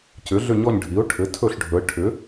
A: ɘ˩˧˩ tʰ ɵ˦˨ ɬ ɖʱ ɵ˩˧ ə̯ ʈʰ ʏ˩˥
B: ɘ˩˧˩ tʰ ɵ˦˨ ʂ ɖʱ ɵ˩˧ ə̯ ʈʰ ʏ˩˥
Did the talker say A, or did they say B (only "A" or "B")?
A